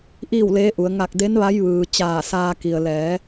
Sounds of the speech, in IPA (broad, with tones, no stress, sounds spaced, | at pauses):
ʔ iː˥˨ w l eː˧˥ ʔ u˩˧ ə̯ ŋ a˧˩ k̚ d e˧˥ n ʋ a˧˥ j ʋ ɯː˩ t͡ɕ aː˧˩ s aː˧ k i˩ ə̯ l ɛː˩˧